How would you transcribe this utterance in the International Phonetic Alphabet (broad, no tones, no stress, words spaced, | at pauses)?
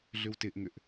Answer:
ɮʏwtɪʔŋʏʔ